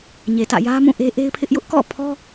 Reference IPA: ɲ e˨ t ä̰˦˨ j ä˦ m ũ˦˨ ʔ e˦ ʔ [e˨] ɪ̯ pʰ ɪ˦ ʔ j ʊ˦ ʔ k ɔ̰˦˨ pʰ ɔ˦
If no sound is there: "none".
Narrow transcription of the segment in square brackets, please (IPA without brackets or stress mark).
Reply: e˦